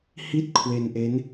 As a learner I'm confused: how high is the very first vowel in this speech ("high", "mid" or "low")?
high